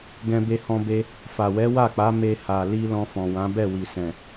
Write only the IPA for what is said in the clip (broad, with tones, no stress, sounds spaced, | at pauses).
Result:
ɡ ɛ̃˧ b e˧ h ɔ̃˧ b e˧ | f a˨ w ɛ˨˦ w a˦˨ k͡p a˨˦ m e˧ h a˨ l i˧ l ɔ̃˧ f ɔ̃˨ w ã˨˦ b ɛ˦˨ w i˨ s ɛ̃˨